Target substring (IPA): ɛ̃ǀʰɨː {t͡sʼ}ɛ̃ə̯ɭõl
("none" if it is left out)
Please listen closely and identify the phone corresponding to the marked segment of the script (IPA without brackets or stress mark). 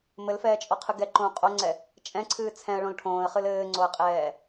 t͡sʰ